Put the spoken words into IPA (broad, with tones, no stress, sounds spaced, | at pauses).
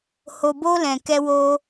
h o˧ b o˦ l ɛ̃˧ k ɛ˦ w o˦